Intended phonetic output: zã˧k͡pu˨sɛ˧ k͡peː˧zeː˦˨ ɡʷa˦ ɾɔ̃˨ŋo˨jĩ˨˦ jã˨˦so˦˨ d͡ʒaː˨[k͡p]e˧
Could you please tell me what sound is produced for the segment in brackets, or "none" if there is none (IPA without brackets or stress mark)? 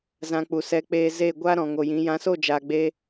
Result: ɡ͡b